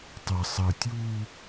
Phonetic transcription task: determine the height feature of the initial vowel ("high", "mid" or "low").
mid